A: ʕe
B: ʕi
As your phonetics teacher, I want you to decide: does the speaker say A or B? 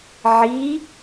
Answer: B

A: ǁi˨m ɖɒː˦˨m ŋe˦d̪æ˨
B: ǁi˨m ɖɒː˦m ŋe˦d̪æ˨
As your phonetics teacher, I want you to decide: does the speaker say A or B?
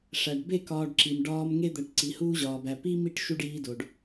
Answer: B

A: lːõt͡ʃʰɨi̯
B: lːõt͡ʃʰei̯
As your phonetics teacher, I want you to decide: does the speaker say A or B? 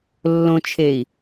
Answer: B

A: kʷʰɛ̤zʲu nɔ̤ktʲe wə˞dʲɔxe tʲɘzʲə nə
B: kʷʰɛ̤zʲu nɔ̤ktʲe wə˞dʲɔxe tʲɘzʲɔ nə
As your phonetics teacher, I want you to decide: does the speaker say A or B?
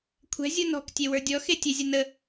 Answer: A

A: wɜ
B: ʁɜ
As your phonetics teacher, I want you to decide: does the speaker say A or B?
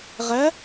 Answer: B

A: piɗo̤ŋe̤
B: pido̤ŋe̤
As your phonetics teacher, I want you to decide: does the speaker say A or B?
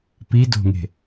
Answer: B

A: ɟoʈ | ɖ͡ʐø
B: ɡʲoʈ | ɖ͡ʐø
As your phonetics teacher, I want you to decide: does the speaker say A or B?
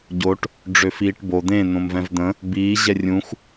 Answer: A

